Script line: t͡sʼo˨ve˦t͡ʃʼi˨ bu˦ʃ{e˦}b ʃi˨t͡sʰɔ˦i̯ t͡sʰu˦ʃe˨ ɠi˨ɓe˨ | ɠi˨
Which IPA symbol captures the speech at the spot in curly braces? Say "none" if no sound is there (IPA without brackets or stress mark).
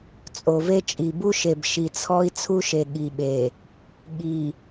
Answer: e˨